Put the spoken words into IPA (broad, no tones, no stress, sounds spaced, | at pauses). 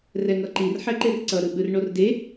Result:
r ɛ ŋ ʌ ǃ i r ħ ɛ ǃ e r ǀ ʌ ɾ ɯ ɓ ɯ r ɳ o r d e